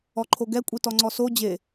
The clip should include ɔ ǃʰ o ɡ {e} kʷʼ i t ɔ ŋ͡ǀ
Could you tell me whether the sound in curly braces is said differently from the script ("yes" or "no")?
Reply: yes